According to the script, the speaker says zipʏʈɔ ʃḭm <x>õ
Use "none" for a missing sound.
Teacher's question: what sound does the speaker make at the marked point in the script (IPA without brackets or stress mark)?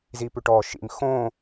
x